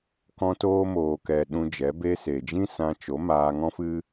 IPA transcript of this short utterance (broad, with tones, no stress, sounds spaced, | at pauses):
k ɔ̃˧ t oː˧ m oː˨ k ɛ˨ ɗ ũ˧ d͡ʒ ɛ˨˦ b e˧ s e˨ d͡ʒ ĩ˦ s ã˧ t͡ʃ o˨˦ m aː˧ ŋ ɔ̃˦ f ɨ˦